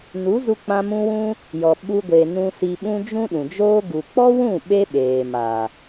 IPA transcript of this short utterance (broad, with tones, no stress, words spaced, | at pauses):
nu˨˦zu˧k͡pã˧ mũ˦wũ˦ | jɔ˨ ɓu˧ɡʷe˨nũ˧ si˧ɓũ˦ d͡ʒũ˦ɗũ˨d͡ʒoː˦ ɡu˨k͡pɔ˦wũ˦˨ ɓe˦ɓeː˨ ma˨